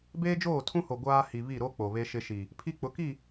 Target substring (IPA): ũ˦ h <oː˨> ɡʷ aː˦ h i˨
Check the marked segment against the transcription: incorrect: o˨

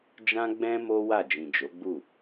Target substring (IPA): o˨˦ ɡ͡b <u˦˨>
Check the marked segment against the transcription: correct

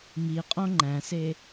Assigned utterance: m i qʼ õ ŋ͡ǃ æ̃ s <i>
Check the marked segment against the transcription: incorrect: e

